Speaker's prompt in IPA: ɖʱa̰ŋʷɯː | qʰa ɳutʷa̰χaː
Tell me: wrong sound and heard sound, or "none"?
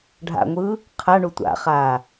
none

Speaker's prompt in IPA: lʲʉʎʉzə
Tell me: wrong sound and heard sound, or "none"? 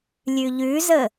none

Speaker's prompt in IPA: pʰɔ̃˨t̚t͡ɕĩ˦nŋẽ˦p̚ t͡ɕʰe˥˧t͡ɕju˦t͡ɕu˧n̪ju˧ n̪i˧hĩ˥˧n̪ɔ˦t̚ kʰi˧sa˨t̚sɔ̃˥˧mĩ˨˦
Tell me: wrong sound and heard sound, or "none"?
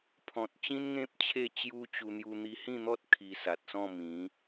none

